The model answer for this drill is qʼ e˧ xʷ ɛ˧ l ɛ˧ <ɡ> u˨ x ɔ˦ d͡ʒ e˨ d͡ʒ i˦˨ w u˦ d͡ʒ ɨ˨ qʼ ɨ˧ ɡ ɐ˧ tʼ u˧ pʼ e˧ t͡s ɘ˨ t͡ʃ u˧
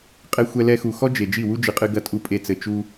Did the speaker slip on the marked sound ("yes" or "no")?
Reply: yes